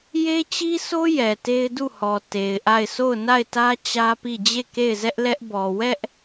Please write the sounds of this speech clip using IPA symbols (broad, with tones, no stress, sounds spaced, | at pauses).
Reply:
j e˦ t͡ɕ i˦ s o˦ j ɛ˨ t e˦ ɪ̯ d u˦˨ h ɔ˨ t e˨ ɪ̯ ʔ a˦˨ ɪ̯ s o˦˨ ʊ̯ n a˦˨ ɪ̯ t ä˦ t͡ɕ ä˦ p i˦˨ d͡ʑ e˦˨ k e˦˨ ɪ̯ z ɛ˦ ʔ l ɛ˦ ʔ b ɔ˨ w ɛ˦ ʔ